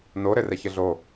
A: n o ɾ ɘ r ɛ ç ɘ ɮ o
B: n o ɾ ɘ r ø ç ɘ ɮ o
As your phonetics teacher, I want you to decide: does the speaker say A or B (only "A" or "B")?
A